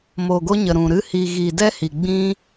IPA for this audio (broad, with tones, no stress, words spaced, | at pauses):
mo˨ɡo˧ ɲə˨ɾũ˨ɾɨ˧ hi˨ɣi˨ dɛ˦hi˨ ɡ͡bĩ˧